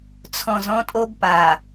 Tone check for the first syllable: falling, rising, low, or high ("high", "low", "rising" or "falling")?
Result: low